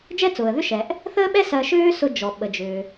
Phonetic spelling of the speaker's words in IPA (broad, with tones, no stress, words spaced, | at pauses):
d͡ʒɛ˥t͡sʊː˩ə̯ðʏ˥ʃɛ˩ʔ | θəː˥ɓɛ˥ sɜ˧ʃʏː˥sʊ˧ d͡ʒɔ˩ɓə˩d͡ʒʏː˩